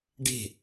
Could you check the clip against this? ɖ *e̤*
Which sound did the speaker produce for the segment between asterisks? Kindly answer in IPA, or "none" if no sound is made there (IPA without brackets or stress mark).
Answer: e̤